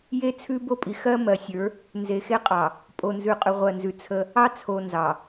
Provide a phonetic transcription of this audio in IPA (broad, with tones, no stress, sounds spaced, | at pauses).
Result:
j e˦ t͡sʰ ʉ˦ b o˦ pʼ i˨ x ɜ˦ m ɜ˨˦ sʲ ə˞˨˦ | n z e˨ x e˦ qʼ ɑ˨ | pʼ o˨ n z ʉ˨ qʼ ʉ˨ ʁʷ ɜ˨ n z ʉ˨ t͡sʰ ə˦ | ɑ˦ t͡sʰ o˨ n z ɑ˨